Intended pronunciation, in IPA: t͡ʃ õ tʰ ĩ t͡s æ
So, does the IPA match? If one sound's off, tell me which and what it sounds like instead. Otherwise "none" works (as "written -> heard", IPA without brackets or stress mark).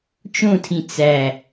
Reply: none